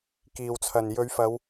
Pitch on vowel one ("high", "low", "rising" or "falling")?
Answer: low